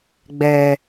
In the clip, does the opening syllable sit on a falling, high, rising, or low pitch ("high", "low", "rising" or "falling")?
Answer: low